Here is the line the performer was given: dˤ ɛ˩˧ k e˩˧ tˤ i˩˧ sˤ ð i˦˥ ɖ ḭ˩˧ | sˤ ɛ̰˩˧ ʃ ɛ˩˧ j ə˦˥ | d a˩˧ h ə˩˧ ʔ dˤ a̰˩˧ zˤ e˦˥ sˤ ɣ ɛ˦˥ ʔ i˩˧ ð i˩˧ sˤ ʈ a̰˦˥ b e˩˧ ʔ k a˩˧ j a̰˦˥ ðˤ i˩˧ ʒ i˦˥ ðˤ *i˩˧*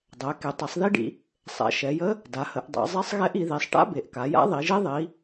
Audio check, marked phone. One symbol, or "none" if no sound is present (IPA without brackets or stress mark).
i˩˧